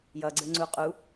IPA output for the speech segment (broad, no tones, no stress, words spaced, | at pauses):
jʌɡ͡ǀɘŋ͡ǀu qʼu